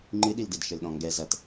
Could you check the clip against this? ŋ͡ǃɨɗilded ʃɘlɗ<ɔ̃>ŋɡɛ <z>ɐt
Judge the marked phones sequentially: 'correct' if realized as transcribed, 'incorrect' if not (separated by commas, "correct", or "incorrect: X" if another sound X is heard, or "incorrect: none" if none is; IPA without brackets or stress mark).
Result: correct, correct